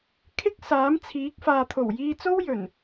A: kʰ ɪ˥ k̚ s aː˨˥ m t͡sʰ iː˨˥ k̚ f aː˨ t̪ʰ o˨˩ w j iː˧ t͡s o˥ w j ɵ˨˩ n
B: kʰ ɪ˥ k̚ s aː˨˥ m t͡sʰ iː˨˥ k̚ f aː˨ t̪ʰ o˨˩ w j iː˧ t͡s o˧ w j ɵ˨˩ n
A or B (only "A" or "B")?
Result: A